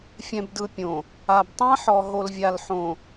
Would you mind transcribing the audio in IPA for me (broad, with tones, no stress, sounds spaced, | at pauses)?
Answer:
fʲ ɛ̃˨ b d ɯ˨ pʲ õ˨ | a˨ b tˤ ã˦ ħ ɔ˨ ɦ o˨ l vʲ a˨ l ħ õ˨